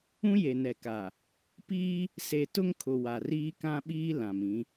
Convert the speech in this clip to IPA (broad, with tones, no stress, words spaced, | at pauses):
ũ˦je˨nɛ˨ka˨ | piː˦ | se˨ tʊ˦ŋkʰʊ˨ wa˨riː˦kã˦ɓiː˦ lã˨mĩ˨˦